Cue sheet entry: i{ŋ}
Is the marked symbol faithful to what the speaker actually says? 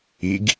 no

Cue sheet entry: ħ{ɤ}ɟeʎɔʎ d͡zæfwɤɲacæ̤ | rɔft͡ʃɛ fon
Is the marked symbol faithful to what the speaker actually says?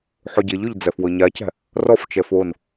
no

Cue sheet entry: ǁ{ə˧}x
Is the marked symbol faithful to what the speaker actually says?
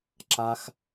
no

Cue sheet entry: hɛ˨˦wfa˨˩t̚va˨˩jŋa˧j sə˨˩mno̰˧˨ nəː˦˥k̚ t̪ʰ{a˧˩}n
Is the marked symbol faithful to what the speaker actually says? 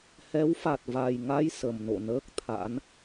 no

